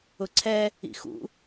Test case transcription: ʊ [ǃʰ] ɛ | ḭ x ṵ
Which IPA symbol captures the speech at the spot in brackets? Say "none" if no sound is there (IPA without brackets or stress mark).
ǀʰ